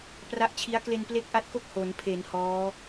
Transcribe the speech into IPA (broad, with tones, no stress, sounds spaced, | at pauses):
p r a˦˥ ʔ t͡ɕʰ i˦˥ a̯ k l e˧ n p l e˥˩ k̚ ʔ a˦˥ t̚ k o˥˩ k̚ h o˩˦ n pʰ e˩˦ n h ɔː˦˥